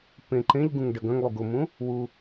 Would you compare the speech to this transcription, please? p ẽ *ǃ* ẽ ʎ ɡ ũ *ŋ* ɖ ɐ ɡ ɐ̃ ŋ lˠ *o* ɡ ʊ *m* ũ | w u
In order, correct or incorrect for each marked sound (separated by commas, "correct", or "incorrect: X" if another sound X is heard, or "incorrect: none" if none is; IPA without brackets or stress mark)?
correct, correct, incorrect: u, correct